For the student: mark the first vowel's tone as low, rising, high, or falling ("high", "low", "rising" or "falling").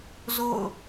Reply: falling